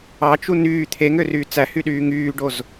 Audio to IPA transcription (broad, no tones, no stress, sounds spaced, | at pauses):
ɑ t͡ʃ u n yː t̪ʰ e ŋ ø r yː t͡s æ h y ɗ yː ŋ yː ɖ o z